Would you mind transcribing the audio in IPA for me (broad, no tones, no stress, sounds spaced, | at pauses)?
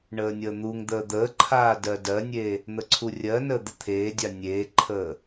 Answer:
ɳ əː nʲ əː n̪ u ŋ d̪ əː d̪ əː ǃʰ aː d ɜ d ɜ nʲ e | n̪ ə ǀʰ u rʲ ɜ n əː d̪ ə t̪ʰ eː dʲ a nʲ eː ǃʰ əː